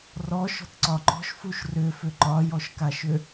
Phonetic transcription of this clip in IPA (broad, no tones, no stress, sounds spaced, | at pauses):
r ɔ ʃ ɔ̤ t ǀ ɒ ǃ ɔ̤ ʃ f u ʃ r ʏ f ʏ ǃ ɒ j ɔ ʃ k a ʃ ʏ